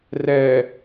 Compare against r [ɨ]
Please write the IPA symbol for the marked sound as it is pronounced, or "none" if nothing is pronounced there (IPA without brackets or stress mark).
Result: ɛ